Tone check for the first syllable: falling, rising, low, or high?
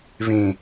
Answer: low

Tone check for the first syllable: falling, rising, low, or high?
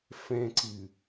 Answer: low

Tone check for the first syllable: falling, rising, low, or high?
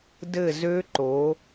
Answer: falling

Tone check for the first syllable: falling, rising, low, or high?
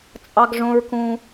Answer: high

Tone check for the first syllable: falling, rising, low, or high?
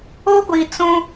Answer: high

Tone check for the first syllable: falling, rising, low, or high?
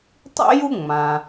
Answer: high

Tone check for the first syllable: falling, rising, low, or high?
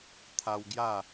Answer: high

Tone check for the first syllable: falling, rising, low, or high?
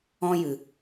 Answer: high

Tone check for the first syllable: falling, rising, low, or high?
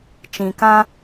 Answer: low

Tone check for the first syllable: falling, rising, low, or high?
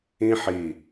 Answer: high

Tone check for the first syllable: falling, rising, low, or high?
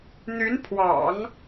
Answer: rising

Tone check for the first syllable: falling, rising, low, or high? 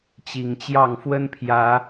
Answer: low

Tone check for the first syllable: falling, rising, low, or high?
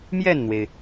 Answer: falling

